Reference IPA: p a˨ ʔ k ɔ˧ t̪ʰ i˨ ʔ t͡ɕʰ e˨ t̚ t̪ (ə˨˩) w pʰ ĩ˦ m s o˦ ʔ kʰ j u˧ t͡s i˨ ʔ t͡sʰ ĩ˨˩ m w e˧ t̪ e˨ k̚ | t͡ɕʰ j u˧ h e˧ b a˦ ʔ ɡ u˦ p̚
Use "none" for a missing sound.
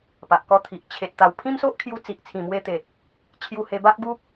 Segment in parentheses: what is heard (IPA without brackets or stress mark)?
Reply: a˨˩